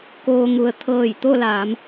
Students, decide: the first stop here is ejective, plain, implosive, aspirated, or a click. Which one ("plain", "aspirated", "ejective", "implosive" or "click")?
plain